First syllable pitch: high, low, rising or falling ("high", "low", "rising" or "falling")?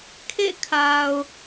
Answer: falling